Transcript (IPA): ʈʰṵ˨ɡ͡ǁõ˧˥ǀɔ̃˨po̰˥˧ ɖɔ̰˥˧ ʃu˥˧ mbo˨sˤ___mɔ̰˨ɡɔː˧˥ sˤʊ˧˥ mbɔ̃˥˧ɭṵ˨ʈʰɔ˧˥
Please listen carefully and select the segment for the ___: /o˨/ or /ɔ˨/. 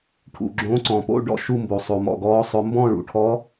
o˨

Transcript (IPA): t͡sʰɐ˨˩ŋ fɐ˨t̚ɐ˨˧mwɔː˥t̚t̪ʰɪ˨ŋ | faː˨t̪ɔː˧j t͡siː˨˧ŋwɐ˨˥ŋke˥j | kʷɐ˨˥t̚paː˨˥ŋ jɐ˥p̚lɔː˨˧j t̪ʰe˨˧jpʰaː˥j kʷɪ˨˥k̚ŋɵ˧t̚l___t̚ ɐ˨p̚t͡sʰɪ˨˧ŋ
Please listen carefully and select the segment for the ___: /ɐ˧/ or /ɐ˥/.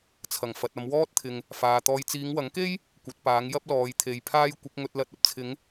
ɐ˧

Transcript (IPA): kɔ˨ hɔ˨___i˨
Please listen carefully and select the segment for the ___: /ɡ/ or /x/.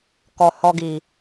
ɡ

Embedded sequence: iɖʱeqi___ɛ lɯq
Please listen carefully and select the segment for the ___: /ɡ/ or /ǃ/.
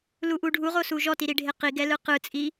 ɡ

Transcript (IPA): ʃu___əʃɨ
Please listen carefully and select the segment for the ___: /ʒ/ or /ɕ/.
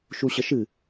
ɕ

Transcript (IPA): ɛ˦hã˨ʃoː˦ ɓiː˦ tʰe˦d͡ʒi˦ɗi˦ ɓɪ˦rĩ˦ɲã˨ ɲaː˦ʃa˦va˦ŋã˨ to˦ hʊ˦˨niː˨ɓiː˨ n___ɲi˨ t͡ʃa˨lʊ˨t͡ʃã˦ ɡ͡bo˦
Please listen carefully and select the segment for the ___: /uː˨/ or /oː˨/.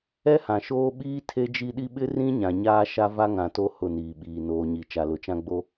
oː˨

